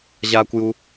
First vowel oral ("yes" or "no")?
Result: yes